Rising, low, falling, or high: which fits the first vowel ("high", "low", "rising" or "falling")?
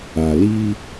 low